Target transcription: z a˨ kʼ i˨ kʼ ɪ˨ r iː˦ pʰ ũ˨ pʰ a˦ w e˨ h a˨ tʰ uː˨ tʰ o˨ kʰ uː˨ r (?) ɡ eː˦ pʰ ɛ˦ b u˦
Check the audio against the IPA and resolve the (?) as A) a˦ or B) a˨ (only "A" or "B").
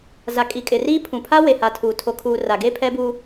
B